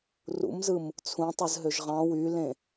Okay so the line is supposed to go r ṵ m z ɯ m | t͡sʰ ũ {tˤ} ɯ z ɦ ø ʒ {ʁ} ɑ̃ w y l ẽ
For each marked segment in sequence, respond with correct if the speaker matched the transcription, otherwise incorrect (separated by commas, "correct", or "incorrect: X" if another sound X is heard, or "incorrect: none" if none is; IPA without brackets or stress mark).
correct, correct